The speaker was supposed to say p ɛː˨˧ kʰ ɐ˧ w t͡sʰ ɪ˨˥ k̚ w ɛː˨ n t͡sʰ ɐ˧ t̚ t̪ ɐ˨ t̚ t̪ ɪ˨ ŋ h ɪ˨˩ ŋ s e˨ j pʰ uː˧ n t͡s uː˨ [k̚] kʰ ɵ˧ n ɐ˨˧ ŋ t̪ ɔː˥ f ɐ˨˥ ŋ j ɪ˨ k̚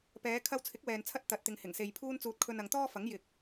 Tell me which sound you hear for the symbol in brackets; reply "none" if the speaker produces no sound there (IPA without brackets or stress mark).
t̚